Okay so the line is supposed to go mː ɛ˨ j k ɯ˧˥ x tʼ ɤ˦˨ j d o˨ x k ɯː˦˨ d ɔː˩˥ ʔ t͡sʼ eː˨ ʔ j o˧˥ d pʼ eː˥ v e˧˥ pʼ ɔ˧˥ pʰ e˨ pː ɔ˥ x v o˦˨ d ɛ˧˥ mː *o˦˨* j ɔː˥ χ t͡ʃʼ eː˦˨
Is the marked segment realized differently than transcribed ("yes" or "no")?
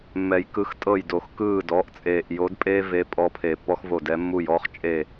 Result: yes